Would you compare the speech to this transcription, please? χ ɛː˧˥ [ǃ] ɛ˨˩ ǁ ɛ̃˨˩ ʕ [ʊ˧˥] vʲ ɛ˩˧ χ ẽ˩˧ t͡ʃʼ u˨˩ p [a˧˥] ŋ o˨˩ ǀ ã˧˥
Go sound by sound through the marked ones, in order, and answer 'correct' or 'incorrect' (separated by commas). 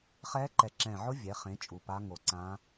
correct, correct, correct